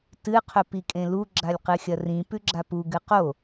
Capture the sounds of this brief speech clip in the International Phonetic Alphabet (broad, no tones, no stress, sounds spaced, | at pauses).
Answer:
t ɨ qʰ ɵ p i kʼ ẽ l u ɡ͡ǁ a lʲ q ɨ xʲ ɐ r ĩ p ʉ ɡ͡ǁ a p u ɡ ɨ q o